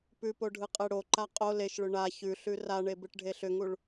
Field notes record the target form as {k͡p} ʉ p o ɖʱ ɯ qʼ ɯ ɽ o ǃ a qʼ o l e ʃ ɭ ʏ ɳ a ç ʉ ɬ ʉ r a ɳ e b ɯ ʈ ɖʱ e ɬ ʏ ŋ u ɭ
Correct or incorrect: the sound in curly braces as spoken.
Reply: incorrect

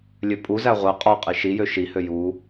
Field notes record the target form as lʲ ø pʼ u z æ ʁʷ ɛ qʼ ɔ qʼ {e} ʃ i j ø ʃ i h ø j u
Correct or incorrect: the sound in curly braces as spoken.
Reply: incorrect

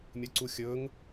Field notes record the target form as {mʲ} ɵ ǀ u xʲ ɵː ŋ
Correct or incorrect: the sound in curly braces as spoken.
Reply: correct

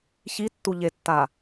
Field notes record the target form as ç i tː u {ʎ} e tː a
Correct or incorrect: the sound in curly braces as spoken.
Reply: correct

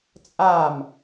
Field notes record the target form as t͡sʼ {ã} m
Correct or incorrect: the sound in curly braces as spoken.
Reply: incorrect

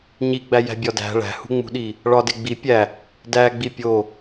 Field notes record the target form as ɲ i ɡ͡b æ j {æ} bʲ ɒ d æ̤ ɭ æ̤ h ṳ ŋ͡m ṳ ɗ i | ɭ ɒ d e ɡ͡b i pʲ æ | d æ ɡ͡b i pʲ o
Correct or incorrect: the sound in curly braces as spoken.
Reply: incorrect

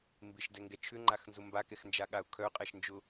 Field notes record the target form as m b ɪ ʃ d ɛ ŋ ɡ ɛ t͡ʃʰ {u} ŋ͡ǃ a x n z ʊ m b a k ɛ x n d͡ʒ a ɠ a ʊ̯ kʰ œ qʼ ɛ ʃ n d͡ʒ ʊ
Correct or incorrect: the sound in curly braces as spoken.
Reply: incorrect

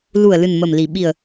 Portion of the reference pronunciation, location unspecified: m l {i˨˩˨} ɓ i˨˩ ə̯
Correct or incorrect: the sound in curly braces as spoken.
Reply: incorrect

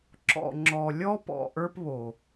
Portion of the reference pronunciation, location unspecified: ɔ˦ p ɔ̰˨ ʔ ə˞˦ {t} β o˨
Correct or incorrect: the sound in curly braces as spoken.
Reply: incorrect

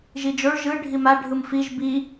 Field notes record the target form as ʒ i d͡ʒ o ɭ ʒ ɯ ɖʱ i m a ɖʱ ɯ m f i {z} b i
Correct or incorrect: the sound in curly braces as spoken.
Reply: incorrect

